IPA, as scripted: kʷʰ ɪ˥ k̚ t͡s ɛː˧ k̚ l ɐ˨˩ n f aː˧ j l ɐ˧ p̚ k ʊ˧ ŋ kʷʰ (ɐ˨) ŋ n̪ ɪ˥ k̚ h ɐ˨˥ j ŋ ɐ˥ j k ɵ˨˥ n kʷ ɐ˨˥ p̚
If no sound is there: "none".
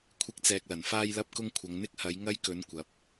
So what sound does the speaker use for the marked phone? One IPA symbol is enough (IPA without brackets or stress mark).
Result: ɐ˨˧